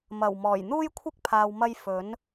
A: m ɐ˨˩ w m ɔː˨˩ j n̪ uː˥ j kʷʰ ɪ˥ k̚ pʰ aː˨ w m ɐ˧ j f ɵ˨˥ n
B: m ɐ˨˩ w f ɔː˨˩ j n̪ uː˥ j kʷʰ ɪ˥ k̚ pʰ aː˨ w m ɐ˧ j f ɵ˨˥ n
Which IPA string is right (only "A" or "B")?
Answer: A